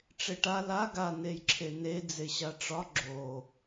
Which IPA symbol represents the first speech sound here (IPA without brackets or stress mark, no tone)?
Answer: ʈ͡ʂ